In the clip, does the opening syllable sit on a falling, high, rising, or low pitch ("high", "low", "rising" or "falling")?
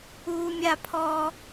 high